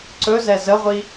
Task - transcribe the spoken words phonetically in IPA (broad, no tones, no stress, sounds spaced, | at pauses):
ǀ ɵ z ɛ z ə ʁʷ i